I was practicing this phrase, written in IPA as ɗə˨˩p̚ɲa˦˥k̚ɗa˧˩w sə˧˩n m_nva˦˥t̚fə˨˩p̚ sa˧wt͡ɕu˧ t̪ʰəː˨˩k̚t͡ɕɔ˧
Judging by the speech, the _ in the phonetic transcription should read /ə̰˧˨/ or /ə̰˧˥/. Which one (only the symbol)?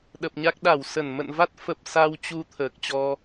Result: ə̰˧˨